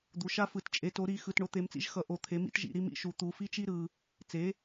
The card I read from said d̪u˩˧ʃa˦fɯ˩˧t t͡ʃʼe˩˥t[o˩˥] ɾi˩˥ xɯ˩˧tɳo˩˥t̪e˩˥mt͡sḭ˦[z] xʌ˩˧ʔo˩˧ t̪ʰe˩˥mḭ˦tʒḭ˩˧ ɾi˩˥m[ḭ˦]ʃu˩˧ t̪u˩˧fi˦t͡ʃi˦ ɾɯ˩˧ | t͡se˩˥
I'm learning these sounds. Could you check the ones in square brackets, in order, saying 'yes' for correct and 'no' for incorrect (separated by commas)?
yes, no, no